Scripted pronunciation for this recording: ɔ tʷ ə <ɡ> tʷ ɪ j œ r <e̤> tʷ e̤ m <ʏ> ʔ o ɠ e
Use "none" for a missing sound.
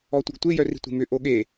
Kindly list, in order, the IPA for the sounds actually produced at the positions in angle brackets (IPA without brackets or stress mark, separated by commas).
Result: ɡ, i̤, ʏ